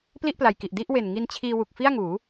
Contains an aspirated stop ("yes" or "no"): yes